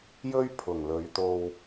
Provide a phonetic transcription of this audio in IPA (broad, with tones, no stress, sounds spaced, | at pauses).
j ɵ˥ ɥ pʰ ʊ˨˩ ŋ l ɵ˨˧ ɥ t̪ o˧ w